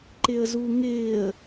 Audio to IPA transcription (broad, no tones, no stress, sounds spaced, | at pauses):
ǃ ɪ ə̯ z u ŋ ɪː ə̯